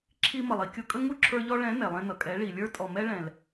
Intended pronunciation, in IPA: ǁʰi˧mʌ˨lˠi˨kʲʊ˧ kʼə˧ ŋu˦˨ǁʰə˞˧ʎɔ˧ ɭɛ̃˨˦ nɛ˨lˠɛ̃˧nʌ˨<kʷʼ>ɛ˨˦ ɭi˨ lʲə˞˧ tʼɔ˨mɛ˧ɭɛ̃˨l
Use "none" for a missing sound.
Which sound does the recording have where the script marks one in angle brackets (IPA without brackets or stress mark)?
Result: kʼ